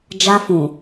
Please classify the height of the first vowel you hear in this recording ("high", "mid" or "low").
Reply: low